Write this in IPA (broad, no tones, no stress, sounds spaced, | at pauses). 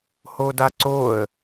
h o d a ǀ o ə̯